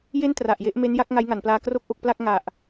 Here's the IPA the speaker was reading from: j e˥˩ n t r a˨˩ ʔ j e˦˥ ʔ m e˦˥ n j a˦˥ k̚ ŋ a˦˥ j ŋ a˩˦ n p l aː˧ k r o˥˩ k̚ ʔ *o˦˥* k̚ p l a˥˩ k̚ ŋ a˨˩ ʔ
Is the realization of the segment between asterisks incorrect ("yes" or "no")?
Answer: yes